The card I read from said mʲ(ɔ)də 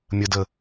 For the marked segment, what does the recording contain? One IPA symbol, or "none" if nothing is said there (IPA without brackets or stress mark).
ə